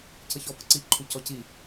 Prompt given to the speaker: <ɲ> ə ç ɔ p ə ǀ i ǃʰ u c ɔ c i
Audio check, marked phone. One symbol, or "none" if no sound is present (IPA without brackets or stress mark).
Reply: c